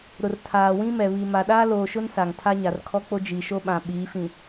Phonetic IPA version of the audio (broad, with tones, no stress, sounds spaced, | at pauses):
ɾ ʊ˨ r tʰ aː˨ w ĩ˦ m ɛ˨ β i˨ m a˨ ɗ aː˦ l oː˨ ʃ ʊ˦ n s a˨ ŋ tʰ a˦ ɲ a˨ r kʰ ɔ˦ k͡p o˦ d͡ʒ i˨ ʃ o˦ ɓ ã˨ ɓ iː˨˦ f ĩ˨